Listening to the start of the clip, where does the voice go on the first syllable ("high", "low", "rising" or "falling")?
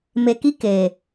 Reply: low